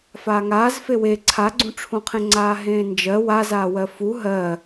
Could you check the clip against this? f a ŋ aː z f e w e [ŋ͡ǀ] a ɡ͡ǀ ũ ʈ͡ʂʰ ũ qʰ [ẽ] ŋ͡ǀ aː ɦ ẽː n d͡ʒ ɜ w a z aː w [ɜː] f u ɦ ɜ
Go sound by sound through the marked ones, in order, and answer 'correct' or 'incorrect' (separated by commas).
incorrect, correct, incorrect